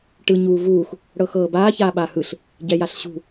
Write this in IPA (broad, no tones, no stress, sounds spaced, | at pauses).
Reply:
ʈ ɯ ɲ uː v uː x | ɽ ɤ x ɤː b aː ç aː ɓ a h ɯ ɬ | ɟ ɛ j a ɬ ɕ ṳ